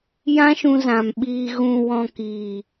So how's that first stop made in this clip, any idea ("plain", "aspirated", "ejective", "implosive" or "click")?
implosive